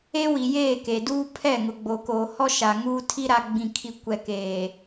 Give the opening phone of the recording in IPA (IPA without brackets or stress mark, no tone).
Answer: e